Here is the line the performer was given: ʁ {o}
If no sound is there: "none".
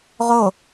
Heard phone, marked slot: o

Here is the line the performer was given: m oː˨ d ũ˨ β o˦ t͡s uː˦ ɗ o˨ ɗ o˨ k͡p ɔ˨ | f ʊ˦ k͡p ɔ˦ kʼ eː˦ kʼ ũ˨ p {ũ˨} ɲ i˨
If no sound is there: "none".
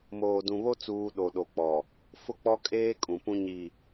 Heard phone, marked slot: ũ˦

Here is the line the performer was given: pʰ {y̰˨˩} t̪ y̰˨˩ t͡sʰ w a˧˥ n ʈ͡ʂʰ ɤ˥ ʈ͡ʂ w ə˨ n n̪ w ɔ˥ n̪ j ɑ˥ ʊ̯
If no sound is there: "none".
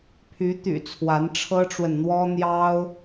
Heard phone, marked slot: y˧˥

